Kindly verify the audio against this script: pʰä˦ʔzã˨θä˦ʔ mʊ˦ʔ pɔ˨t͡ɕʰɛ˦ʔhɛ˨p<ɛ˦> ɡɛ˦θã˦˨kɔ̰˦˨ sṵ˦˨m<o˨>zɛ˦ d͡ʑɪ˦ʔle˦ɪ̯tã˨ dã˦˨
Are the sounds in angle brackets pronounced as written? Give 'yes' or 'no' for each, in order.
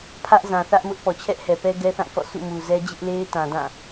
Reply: yes, no

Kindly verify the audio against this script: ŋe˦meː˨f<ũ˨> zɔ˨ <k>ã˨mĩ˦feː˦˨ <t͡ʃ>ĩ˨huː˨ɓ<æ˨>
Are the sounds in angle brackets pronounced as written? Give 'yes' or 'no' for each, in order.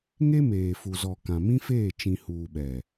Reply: no, yes, yes, no

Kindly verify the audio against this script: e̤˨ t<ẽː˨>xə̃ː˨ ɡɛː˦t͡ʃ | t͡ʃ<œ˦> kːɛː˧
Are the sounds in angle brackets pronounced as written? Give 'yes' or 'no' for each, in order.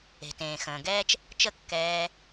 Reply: yes, no

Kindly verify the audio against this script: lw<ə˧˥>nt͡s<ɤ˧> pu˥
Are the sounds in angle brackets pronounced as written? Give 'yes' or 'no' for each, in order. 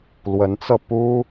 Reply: yes, yes

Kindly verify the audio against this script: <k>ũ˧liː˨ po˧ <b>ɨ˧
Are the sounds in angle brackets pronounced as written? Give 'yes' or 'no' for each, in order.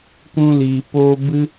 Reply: yes, yes

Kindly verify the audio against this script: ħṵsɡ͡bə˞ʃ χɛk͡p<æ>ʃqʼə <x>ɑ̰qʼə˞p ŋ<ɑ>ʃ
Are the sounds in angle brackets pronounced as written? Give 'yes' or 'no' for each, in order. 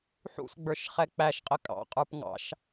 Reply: yes, no, no

